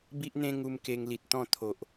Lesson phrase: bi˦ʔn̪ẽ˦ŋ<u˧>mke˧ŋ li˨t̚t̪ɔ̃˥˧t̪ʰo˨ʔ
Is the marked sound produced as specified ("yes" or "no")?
yes